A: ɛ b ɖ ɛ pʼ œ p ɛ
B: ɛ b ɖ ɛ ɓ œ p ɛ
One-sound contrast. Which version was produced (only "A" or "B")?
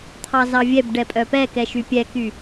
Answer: A